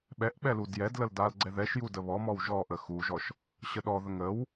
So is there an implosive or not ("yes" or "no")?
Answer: yes